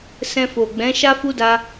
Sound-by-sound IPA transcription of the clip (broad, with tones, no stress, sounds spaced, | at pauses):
s ɛ̃˧ f o˨ ɡ͡b ɛ̃˨˦ ʃ a˦ f u˦ d a˦